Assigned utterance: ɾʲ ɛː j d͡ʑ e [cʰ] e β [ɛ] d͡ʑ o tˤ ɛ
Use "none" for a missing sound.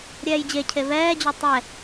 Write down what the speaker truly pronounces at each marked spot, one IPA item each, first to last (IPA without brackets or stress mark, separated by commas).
cʰ, ɛː